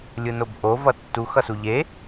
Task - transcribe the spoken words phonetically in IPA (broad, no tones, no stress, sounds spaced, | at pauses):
lʲ ɯ n o b ʔ o v ʌ tː u x ʌ s u ʎ e